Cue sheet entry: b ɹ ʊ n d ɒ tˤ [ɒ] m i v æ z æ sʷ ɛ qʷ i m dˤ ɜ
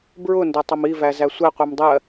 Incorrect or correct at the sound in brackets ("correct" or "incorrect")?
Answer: incorrect